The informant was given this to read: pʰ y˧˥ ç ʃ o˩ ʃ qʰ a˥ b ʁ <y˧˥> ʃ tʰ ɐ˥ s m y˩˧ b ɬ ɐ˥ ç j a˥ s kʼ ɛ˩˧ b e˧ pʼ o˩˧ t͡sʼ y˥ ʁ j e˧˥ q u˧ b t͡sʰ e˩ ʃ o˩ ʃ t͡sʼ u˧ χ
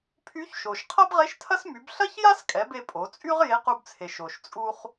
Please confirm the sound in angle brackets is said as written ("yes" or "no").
no